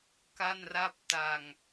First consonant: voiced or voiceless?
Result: voiceless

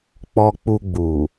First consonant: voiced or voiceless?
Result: voiceless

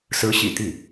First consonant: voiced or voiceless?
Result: voiceless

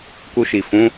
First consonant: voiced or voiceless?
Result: voiceless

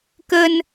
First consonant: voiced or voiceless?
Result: voiceless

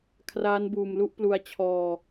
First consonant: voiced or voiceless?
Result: voiceless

